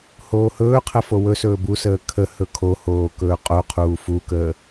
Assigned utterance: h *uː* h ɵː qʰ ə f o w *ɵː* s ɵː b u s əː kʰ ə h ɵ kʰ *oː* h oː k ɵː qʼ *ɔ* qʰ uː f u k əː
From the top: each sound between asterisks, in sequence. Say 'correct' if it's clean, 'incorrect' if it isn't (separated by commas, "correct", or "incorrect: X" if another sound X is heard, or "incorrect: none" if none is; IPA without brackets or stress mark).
incorrect: oː, incorrect: ɵ, incorrect: o, incorrect: o